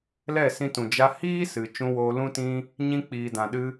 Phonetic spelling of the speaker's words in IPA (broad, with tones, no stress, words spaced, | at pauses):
lɛ˦˨sĩ˧tũ˨ d͡ʒa˧ hiː˦sɨ˨ t͡ʃũ˧woː˧lũ˦tĩ˦ | ɲĩ˦ k͡piː˨dã˨ɗɨ˧